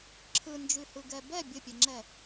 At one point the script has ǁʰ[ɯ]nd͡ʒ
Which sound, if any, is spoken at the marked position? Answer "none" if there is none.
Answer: ɯ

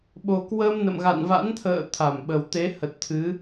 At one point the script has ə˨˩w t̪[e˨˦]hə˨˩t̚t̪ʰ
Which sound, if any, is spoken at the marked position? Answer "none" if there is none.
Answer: e˨˦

